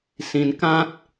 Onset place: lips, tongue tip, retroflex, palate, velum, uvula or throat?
tongue tip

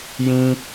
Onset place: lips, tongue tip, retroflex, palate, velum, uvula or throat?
palate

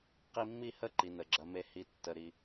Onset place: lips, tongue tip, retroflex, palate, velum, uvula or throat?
uvula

